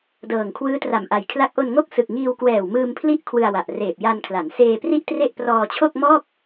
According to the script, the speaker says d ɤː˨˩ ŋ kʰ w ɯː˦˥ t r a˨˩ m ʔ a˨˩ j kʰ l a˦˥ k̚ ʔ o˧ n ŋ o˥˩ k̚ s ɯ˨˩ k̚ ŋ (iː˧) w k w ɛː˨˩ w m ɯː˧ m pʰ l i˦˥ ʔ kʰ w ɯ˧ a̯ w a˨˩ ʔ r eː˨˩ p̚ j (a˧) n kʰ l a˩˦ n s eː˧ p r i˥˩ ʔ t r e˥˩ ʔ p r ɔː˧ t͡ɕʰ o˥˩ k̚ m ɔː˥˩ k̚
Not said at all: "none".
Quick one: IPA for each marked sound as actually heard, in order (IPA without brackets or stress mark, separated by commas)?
iː˧, a˧